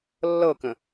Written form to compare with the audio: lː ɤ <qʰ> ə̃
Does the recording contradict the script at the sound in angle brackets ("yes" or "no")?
yes